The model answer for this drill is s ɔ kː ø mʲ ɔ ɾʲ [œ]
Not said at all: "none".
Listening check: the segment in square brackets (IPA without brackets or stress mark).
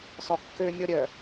œ